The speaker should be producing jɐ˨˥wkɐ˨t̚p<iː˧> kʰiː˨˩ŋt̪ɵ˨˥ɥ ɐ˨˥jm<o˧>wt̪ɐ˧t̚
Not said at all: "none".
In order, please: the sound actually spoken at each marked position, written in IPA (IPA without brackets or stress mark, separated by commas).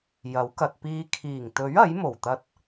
iː˧, o˨˩